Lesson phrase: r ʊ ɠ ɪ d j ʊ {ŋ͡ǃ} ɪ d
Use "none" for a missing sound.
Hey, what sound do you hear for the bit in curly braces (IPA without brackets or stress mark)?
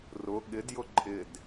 ǃʼ